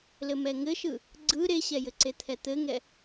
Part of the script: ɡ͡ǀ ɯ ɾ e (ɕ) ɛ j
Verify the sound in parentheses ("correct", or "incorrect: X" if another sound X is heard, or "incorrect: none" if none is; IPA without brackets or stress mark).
correct